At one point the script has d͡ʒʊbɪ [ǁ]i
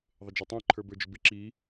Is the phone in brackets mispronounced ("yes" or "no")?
no